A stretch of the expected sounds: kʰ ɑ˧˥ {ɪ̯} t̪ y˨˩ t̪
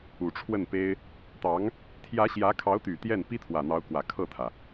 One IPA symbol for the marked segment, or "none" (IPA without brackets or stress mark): ʊ̯